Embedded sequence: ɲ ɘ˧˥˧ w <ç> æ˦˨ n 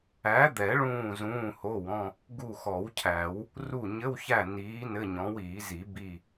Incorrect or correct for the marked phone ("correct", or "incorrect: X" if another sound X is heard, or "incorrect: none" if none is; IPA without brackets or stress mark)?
correct